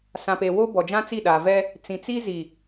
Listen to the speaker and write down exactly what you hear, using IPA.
s ã˨ p e˨ w o˦ b ɔ˨ d͡ʒ ã˦ t͡s i˦˨ ɗ a˨ v ɛ˦ | t͡s ĩ˨ t͡s i˦ z i˨

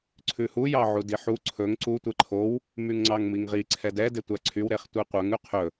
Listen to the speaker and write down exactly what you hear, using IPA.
ǀʰ ʉ h u j ɑ ʕ u d i ħ u ǀʰ ɵ ŋ ǀ u tʷ ɛ ǃʰ o w | m y ŋ ŋ͡ǀ ɑ ŋ m i ŋ ʁ i ǀʰ ɛ d ɛ d e tʷ æ ǀʰ y w ɾ e χ tʷ e qʷ œ ŋ ʉ qʰ ɵ

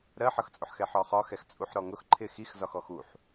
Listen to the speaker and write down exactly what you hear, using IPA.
ɾ ɜ ħ ʌ x t͡sʼ ʊ ħ x ɛ ħ ɒ χ ɒ x ɛ x t͡sʼ u ħ ɾ ɔ ŋ ʊ x ǃʰ ɪ x i x z ɒ x ɔ x u ħ

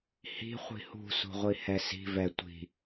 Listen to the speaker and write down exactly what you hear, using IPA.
h i̤ χʷ i̤ h ṳ s ṳ ʁʷ i h ɛ s i̤ v ɛ tʷ i̤

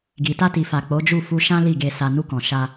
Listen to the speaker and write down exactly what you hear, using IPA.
ɡ i˨ t a˧ t i˨ f a˨ k͡p o˨˦ d͡ʒ u˦˨ f u˧ ʃ ã˦ l i˦˨ ɡ e˨ s a˨ n u˧ k ɔ̃˨ ʃ a˧

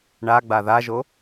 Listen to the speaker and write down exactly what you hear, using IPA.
ɳ a ɡ͡b a ð a ʒ o

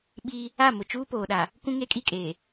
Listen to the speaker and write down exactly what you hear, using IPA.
ɓ iː˦ | a˦˨ m ʊ˨ t͡ʃ uː˦ p oː˨ ɗ a˨ | kʷ ũ˦ ŋ e˦ kʼ i˦ kʼ eː˨

